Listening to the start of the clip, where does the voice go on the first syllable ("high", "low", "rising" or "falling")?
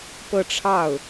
falling